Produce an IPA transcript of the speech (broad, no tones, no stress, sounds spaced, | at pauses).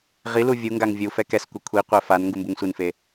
ʁ i l u vʲ u ŋ ɡ a ŋ vʲ u f ɛ k ɛ s kʷ e kʷʰ i qʷ ɛ f a n ŋ ɡ u m b u ŋ sʷ i n f e